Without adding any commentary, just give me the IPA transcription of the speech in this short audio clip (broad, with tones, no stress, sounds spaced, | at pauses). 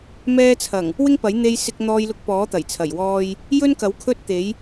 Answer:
m ɛː˧ t͡sʰ ɐ˨˩ ŋ | w ɪ˥ ŋ p ɐ˨˥ j n̪ e˧ j s ɪ˧ k̚ n̪ ɔː˧ j l ʊ˧ k̚ p ɔː˨˥ t̪ ɐ˨˩ j t͡sʰ ɐ˨˩ j w ɔː˧ j | j ɵ˥ n k ɐ˨˥ w kʰ ɵ˥ t̚ t̪ e˨˥ j